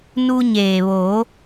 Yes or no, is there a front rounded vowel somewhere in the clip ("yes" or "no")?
no